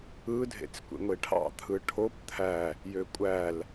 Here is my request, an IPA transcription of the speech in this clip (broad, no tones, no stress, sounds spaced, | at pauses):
ɯ dʱ ḛ t͡s kʷ ḛ ŋʷ e ʈʰ ɑ̰ t̪ʰ ɯ ʈʰ o p t̪ʰ æ | j ø kʷʼ æ l